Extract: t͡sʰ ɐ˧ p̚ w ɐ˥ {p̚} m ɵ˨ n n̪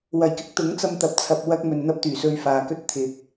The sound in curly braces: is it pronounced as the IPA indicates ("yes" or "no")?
no